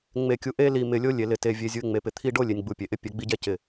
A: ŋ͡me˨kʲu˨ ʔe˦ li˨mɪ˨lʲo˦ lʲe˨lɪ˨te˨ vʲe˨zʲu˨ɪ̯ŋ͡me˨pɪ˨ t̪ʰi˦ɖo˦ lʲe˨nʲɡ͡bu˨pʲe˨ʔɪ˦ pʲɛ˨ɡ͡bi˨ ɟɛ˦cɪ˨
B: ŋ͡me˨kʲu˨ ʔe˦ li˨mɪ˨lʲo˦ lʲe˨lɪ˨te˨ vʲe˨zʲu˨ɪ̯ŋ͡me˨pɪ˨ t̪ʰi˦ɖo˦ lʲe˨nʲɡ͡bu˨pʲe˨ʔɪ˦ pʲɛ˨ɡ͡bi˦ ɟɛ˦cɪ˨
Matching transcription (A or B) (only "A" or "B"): B